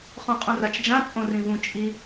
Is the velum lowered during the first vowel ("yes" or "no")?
yes